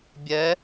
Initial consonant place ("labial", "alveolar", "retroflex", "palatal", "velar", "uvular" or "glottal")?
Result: labial